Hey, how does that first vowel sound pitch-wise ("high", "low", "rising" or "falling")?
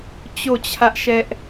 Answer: falling